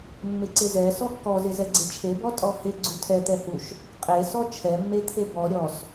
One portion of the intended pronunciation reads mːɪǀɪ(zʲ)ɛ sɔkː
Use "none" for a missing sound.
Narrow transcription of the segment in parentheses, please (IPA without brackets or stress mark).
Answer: z